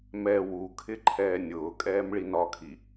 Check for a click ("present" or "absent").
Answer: present